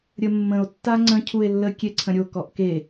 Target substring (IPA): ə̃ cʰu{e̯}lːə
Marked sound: correct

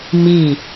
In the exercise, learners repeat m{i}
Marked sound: correct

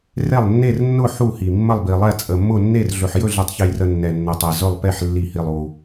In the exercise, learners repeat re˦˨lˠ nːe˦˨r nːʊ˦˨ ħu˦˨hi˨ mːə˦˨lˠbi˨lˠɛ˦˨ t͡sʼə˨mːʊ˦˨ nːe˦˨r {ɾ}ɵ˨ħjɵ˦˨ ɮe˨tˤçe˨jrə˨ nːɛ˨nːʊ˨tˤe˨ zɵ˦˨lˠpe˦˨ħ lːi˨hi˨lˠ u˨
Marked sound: incorrect: ɮ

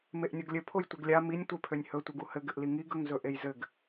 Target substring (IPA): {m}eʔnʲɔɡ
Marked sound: correct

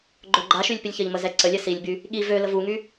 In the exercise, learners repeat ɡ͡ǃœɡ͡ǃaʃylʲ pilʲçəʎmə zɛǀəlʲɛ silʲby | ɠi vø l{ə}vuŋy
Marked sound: correct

